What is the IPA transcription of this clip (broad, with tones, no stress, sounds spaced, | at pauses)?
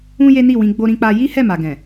ũ˦ j e˦ n i˦˨ w ĩ˧ ɡ͡b o˦ ɾ ĩ˦ k͡p a˦ j i˦ h ɛ˦˨ m a˨ ɡ ɛ̃˨